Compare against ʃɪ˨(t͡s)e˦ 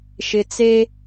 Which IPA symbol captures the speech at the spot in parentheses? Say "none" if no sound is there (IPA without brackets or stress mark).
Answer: t͡s